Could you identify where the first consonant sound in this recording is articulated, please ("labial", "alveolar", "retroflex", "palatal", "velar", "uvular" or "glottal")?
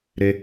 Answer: alveolar